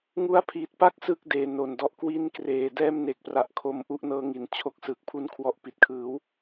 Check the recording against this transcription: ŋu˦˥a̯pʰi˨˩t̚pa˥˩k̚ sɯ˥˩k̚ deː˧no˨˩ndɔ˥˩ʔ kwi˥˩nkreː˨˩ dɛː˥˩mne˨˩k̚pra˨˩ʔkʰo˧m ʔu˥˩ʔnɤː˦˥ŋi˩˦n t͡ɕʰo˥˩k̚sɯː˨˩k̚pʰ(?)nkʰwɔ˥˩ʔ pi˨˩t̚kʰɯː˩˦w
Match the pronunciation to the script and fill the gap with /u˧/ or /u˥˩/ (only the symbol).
u˥˩